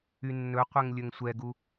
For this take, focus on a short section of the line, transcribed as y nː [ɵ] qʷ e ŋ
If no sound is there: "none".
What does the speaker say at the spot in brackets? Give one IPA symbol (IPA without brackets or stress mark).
ɵ